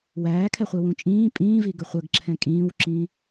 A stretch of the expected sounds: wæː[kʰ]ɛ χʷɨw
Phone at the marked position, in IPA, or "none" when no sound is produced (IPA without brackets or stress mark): kʰ